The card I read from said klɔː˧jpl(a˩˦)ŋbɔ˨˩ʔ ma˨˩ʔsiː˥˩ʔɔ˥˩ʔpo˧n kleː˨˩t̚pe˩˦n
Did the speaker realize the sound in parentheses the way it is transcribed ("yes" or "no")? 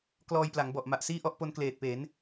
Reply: yes